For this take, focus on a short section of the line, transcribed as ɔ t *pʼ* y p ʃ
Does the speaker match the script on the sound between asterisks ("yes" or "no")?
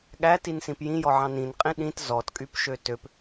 no